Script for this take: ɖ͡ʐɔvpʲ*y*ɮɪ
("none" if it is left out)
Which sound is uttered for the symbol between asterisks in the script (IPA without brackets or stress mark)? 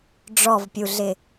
u